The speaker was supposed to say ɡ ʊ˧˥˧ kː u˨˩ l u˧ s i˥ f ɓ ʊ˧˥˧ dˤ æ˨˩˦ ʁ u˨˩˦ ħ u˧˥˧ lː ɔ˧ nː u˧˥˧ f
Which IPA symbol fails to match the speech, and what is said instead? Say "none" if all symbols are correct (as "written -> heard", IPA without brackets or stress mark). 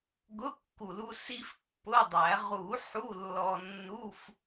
ɓ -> pː